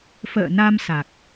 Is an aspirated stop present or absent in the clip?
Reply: absent